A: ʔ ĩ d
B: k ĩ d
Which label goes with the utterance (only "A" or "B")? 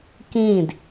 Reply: B